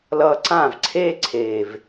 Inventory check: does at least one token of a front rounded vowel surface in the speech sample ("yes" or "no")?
no